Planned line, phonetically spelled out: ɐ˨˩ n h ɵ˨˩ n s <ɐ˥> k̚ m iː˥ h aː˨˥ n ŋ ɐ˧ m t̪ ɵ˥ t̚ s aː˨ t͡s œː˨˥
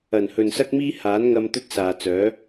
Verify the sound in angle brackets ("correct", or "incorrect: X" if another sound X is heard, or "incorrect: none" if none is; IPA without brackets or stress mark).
correct